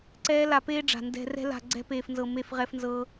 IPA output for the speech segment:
ǀ ɛː˦ l a˧ p eː˦ ɖ͡ʐ a̤˨ n d ɛ̤˧ r ɛ̤˦ l a̤˧ ɡ͡ǀ ɛ̤˦ p eː˧ f n z ɤ˧ m e˦ f ʁ ɛ˦ f n z ɤː˦

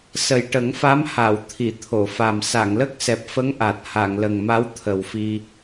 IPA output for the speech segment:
s ə˨˩ j ʈ ə˨˩˦ ŋ f a˧˥ m h a˨˩˨ w t̪ʰ i˨˩˨ t̪ʰ o˨˩˨ f a˨˩ m s a˨˩˨ ŋ l ə˦˥ k̚ s ɛ˨˩ p̚ f ə˧˥ ŋ ʔ a˨˩ t̚ h a˨˩˨ ŋ l ə˨˩ ŋ m a˧˥ w t̪ʰ ə˨˩ w f i˧

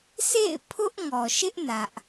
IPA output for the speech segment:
sʰ ḛ˦˨ ɪ̯ pʰ ʊ˦ ʔ ŋ ɔ˨ ʃ ɪ˦ ʔ n ä˦ ʔ

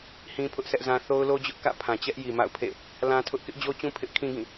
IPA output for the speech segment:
h ĩ˦ pʰ ʊ˦ ʔ sʰ ɛ˦ ʔ z ã˦ θ o˦ ʊ̯ l o˦ d͡ʑ ʊ˦ ʔ k ä̰˦˨ pʰ ã˨ t͡ɕ ɛ˦ ʔ j i˨ m a̰˦˨ ʊ̯ pʰ ḛ˦˨ | l ã˦ tʰ ʊ˦ ʔ k ɪ˦ ʔ d͡ʑ o˦ t͡ɕ ũ˦ pʰ ɪ˦ ʔ kʰ ĩ˦ ɡ ĩ˦˨

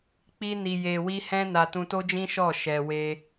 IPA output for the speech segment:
k͡p i˦ n i˧ j e˧ w i˦ h ɛ̃˦ n a˧ t ũ˧ t o˦ d͡ʒ ĩ˦ ʃ ɔ˦˨ ʃ ɛ˧ w e˦

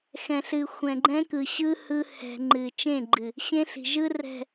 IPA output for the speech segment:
x ɛ̃˨ ɬ ɨ˨ xʷ ɛ̃˨ ɡ͡ǃ ɛ̃˦ k ɯ˨ ɕ ɯ˦ h ɯ˦ h ɛ̤˨ ŋ͡ǃ ɨ˨ t͡ʃ ẽ˦˨ ɡ͡ǃ ɨ˨ | ɕ ẽ˦ ɬ i̤˨ ʒ ɯ˦ r ɛ̤˦˨

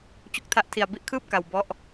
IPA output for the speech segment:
t͡ɕ u˦˥ k̚ tʰ a˦˥ ʔ tʰ i˧ a̯ b i˥˩ ʔ kʰ ɯː˥˩ p̚ k a˧ w b ɔ˥˩ ʔ

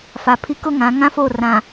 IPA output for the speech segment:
f a˨ pʰ i˦ k ʊ˦ ŋ ã˨˦ ŋ ã˦ f o˦˨ r ã˨

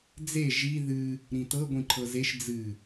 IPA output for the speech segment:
d͡z e ʒ i ð ɨ | ɾ ĩ t ɤ ɡʷ ĩ ǃʰ ɤ z e ʃ d͡z ɨ

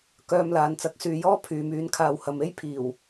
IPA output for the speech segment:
k œː˧ m l aː˨ n t͡s ɐ˨˥ k̚ s yː˨ j ɔː˥ pʰ yː˨ m yː˨˥ n kʰ aː˨ w h ɐ˨ m e˥ j pʰ iː˨˩ w

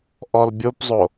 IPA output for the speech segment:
ʔ ɔ l bʲ o p zˤ o

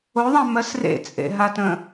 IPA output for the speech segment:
o ðˤ ã m ɜ s r ḛ t͡sʼ ḛ ɦ a t ə̃

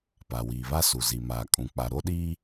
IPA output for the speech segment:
p a˨ w iː˨ β a˦ s u˨ z i˨ m aː˨ kʼ ũ˨ k͡p a˨ ɾ o˦ ɗ iː˦

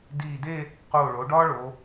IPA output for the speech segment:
d iː˧˩ d e˥˧ | q oː˧˩ ɭ oː˩˧ ɖ ɒː˥ ɭ o˩˧

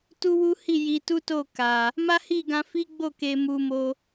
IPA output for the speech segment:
t u˦ w u˦ h i˦˨ j i˧ t u˦ t o˦˨ k a˨ | m a˦ h i˦˨ ɡ ã˧ f i˦ ɡ͡b o˦˨ k e˧ m u˧ m o˧

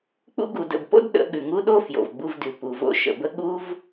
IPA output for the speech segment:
k͡p ṵ˧ ɡ u˨ d ə̰˨ b p o̰˦ d ɗ ə̰˨˦ ɠ ʉ˨ ŋ u˦ ɗ o˦ f j o̰˨ v ɡ͡b u˧ v d ʉ˨ p u˨ v o̰˧ ʃ ə̰˨ b ə˦ ɠ u˦ v

